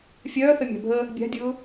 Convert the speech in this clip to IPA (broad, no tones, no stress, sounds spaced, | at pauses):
fʲ œː θ ə mʲ a̤ bʱ ə | bʲ a̤ dʲ ʊː